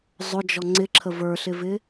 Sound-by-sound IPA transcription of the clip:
zˤ ʊ d͡ʒ ɔ ŋ͡ǀ ɪ ǁʰ ə v ə˞ ɬ ɪ v ɪ

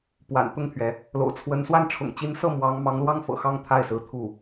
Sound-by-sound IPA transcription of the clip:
p w a̰˨˩ n t̪ ʊ˥˩ ŋ t̪ʰ ɥ ɛ˩ | l o̰˨˩ ʊ̯ t͡sʰ w ə˧˥ n s w a˥˩ n ʈ͡ʂʰ ʊ̰˨˩ ŋ t͡ɕ i˧˥ n s ɤ˥˩ m w ɑ˧˥ ŋ m ɑ˧˥ ŋ l w ɑ˥ ŋ f ɤ̰˨˩ x ɑ˥˧ ŋ t̪ʰ a˥˩ ɪ̯ s ɹ̩˧˥ t̪ʰ u˥˩

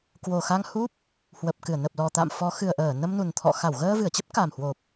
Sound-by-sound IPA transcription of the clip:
k w o˨˩ x a˧ ŋ h u˦˥ p̚ | h w ə˨˩ p̚ k ɨ˧˩ ə̯ n ə˨˩ p̚ l ɔ˨˩ t̪ a̰˧˨ m f ɔ˨˦ x ɨ˨˩ ə̯ ʔ əː˧˩ n ə˧ m n u˨˩ n t̪ʰ ɔ̰˧˨ x a˧˩ w ɣ əː˧ v ɨ˧˩ ə̯ t͡ɕ ə˦˥ p̚ k a˨˩ m h w o˨˩ p̚

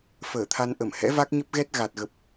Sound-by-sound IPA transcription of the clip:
f əː˧˩ t̪ʰ a˧ n ʔ ə˧˩ m h ɛ̰˧˥ v a˦˥ k̚ ɲ ə˦˥ p̚ ɣ ɛ˦˥ t̚ ɣ a˨˩ t̚ ɣ ə˨˩ p̚

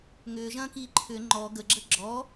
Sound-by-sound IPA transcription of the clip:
ŋ ʏː ʒ ɐ̃ː k iː ǃʰ ʏ ŋ͡ǃ ɔ ɡ ə ɡ͡ǁ ə ɡ͡ǁ ɔ

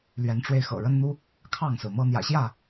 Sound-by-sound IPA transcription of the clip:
l ɥ ɛ˨˦ n ʈ͡ʂ w e˧ ɪ̯ x ɤ̰˨˩ ɻ ə˦ n n̪ u˦ | kʰ ɑ˥˨ ŋ s ɹ̩˩ m ɤ˦ n̪ j ä̰˨˩ ɕ j ä˥˨

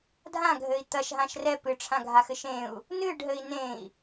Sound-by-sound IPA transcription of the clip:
dʱ ã ɡʱ ɘ i̯ t̪ ɐ ʃ ɦ ã ʃ r ɛ p ɨ ʈ͡ʂʰ ã ɡʱ a x ɘ ʃ ẽ u̯ | n ɨ ɖ ɦ ɘ i̯ n ẽ i̯

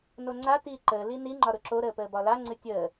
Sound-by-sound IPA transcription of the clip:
n o ŋ͡ǀ a t iː ǃ əː l i n i ŋ͡ǃ ɒ ɾ ʊ ǁ o ɾ əː p əː b ɒ l a ŋ͡ǀ ɨ tʲ əː

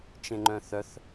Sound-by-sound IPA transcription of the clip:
t͡ʃ ẽ ŋ͡ǃ œ̃ θ œ θ

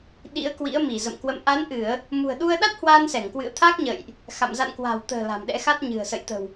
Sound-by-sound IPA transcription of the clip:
ɗ ḭ˧˥ ə̯ k w ḭ˧˥ ə̯ m i˧˩ z ə̰˧˨ m k w ə̰˧˨ m ʔ a˨˦ n ʔ ɨ˧˩˨ ə̯ | m ṳ˨˩ ə̯ ɗ u˧ ə̯ ɗ a˦˥ t̚ h w aː˧ n s ɛ˧˩ ŋ k w ɨ̰˧˨ ə̯ t̪ʰ aː˦˥ k̚ ɲ ə̰ː˧˨ j ʔ | x a̰˧˨ m z a̰˧˨ n k w a̤˨˩ w t̪ ə̤ː˨˩ l a̤˨˩ m ɗ ɛ̰˧˥ x a˦˥ t̚ ɲ ɨ̤˨˩ ə̯ s ə̰˧˨ j t̪ ə̤˨˩ w

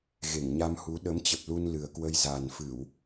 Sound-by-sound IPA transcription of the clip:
ɣ e˧˩ ŋ ɲ a˧ m h u˨˦ ɗ ə˨˦ m t͡ɕ ə˨˩ p̚ l u˧ n l ɨ˨˩ ə̯ k w ə˧ j z a˨˩ n f ɨ˧˩˨ w

